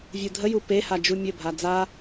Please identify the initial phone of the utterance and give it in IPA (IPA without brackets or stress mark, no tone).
vʲ